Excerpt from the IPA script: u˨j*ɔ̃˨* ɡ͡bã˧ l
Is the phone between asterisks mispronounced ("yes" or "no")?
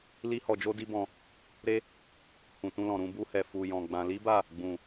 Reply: no